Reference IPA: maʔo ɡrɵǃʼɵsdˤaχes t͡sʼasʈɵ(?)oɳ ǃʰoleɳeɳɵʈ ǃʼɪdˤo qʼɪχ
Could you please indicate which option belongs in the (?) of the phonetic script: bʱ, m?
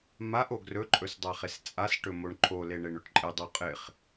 m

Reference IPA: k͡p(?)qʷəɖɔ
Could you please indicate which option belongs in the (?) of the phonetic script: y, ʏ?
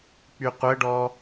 y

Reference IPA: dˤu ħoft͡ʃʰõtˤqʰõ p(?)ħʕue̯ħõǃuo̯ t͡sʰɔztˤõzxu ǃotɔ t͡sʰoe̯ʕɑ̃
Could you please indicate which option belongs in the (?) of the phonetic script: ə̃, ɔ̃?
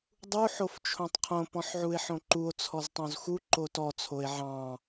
ɔ̃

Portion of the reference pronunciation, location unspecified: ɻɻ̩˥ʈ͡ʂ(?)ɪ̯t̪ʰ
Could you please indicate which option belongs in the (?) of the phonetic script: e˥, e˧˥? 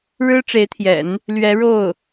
e˧˥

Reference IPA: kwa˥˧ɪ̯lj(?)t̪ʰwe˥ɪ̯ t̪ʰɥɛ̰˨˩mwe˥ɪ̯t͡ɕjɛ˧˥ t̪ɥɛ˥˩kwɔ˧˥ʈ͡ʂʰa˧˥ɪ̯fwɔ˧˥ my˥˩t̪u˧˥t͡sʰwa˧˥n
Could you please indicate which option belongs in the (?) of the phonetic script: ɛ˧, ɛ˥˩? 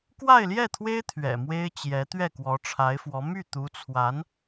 ɛ˥˩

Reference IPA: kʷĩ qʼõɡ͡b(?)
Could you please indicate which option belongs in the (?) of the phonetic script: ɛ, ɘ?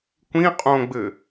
ɘ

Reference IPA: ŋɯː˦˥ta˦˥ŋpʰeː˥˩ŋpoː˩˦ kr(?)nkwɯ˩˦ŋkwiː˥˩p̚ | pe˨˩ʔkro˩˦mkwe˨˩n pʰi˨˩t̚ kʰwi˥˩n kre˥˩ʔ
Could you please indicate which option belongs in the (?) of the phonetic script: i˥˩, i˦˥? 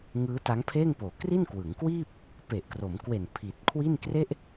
i˥˩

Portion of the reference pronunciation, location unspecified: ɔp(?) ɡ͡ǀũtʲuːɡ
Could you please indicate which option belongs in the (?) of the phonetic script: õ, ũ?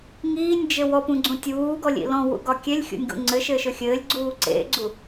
ũ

